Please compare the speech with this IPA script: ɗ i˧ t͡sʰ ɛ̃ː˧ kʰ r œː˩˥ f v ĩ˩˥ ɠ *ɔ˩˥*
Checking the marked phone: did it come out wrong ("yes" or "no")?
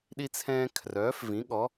no